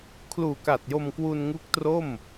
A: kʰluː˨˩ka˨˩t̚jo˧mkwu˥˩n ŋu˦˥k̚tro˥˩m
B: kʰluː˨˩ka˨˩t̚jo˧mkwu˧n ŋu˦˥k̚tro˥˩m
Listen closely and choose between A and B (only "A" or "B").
B